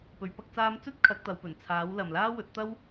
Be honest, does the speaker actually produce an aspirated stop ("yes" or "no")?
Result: yes